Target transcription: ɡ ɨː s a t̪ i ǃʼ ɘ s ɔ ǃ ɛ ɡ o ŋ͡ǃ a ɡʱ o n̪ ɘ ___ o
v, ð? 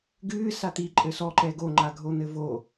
v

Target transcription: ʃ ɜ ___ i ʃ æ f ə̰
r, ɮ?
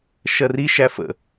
r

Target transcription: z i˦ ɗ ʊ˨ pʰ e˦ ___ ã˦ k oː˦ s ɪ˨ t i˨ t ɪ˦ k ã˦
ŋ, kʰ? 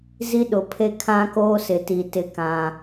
kʰ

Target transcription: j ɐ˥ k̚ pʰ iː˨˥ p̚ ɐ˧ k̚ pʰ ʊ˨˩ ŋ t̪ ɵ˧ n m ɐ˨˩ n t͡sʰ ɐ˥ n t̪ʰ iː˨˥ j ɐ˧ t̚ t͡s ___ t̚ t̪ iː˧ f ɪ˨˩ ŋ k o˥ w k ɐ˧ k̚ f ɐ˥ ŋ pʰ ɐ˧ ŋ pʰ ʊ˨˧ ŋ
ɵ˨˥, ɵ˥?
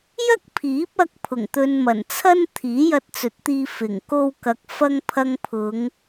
ɵ˨˥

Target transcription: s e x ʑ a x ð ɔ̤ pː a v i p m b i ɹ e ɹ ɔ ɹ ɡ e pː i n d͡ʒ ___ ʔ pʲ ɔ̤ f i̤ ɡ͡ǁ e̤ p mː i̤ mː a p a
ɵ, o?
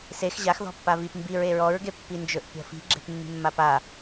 ɵ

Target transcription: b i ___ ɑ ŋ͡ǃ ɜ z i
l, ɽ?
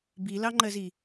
l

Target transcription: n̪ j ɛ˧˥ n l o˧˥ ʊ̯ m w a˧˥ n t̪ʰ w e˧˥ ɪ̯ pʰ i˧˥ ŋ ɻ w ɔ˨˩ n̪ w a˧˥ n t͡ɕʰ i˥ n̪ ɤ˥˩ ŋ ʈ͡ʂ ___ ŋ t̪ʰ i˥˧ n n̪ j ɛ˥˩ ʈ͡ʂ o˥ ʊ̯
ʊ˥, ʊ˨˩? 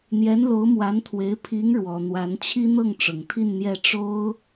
ʊ˨˩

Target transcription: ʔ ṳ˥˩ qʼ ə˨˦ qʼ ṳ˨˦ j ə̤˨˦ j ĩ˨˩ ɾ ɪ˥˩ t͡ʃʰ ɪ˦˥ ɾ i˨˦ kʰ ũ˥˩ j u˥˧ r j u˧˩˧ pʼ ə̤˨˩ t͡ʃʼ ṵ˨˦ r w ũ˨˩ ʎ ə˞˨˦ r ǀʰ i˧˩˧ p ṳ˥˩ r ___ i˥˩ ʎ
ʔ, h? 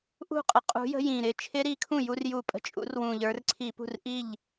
ʔ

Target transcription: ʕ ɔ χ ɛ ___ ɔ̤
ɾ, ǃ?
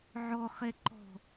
ǃ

